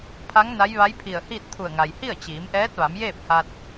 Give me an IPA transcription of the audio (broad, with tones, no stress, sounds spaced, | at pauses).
pʰ a˧˥ ŋ n a˧˥ j ʋ a˧˥ j pʰ i˧˩ ə̯ h i˥˨ t̚ t̪ʰ u˧˩ ə̯ ŋ a˩ j h i˥˨ ə̯ t͡ɕ iː˩˧ m ʔ ɛː˧˥ t̚ ʋ a˩˧ m j eː˥˨ p̚ h a˧ t̚